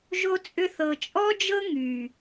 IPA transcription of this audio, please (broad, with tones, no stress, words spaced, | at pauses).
ʒo˧t͡sʼʏ˧ θɤ˨t͡ʃʼɔ˦d͡ʒɤ˦ ŋy˨